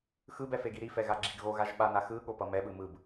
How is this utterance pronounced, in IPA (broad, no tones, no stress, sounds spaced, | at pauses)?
x ɯ b ɛ f e ɡ i ɾ i f ɛ ɣ a ɡ͡ǁ i ɡ ɣ o ɣ a ʒ ɓ a n a x ɯ ɠ o p ʌ m ɛ ɓ ɯ m ɯ b